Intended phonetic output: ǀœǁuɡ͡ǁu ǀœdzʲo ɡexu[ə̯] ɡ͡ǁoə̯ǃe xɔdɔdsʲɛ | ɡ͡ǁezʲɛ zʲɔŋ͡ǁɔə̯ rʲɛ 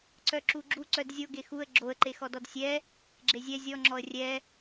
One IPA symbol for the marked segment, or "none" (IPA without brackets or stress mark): ə̯